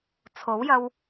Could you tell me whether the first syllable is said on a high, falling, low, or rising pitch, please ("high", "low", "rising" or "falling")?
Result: rising